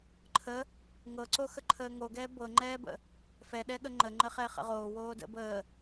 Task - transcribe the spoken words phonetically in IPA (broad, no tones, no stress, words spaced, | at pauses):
ǃʰə | ŋɤǀo xəǃʰəːŋoɡɛː bɤŋ͡ǃɛːbə̰ | fɛɗɛɠə ŋ͡ǃəŋ͡ǃəχɛ χə̰ʁoː woːdə̰ bəː